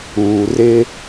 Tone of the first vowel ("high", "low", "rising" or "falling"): low